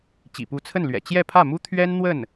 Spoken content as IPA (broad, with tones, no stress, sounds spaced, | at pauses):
t͡ɕ ḭ˨˩ p u˧˥ t͡sʰ ə˥˩ n l ɥ ɛ̰˨˩ t͡ɕ j ɛ˥˧ pʰ ä˥˩ m u˥ t̪ʰ ɥ ɛ˥ n n̪ w ə˥˩ n